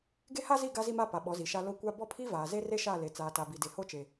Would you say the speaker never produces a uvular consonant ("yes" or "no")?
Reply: yes